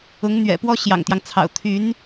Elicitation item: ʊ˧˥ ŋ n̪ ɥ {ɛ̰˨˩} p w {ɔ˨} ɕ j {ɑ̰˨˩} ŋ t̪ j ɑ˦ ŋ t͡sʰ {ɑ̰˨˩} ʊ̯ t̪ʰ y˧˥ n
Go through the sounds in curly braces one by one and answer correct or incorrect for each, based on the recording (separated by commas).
correct, incorrect, correct, correct